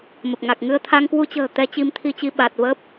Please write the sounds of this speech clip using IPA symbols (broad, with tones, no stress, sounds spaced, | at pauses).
m ə˨˩ p̚ ŋ a˨˩ k̚ ŋ ɨ˧ ə̯ t̪ʰ a˧ ŋ k w u˧ t͡ɕ ə̤ː˨˩ t̪ ɛ˧ t͡ɕ i˧ m t̪ʰ i˧ t͡ɕ i˧ ɓ a˨˩ t̚ v ə˦˥ p̚